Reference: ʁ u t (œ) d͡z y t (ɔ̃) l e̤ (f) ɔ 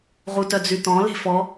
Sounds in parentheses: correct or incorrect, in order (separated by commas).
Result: correct, correct, correct